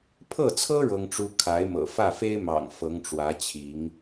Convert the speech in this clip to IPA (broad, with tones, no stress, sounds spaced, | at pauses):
pʰ ɤ˥˩ t͡sʰ ɤ˥ ɻ ɤ˥ ŋ ʈ͡ʂ u˥ kʰ a˧˥ ɪ̯ m ɤ̰˨˩ f ä˥˩ f e˥ ɪ̯ m ɑ̰˨˩ ŋ f ɤ˧˥ ŋ ʈ͡ʂ w ä˧˥ t͡ɕʰ i˧˥ ŋ